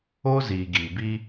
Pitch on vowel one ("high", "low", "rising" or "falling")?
high